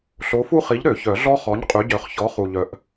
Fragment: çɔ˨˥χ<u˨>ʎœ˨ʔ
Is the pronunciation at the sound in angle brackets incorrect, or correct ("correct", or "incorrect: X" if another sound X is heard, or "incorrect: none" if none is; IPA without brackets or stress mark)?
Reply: correct